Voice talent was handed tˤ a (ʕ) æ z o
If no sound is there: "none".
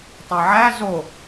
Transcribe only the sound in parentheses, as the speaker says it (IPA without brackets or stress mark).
ʕ